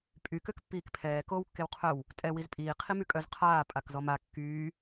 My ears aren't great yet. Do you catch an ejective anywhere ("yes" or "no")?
yes